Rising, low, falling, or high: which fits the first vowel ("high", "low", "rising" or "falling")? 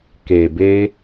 low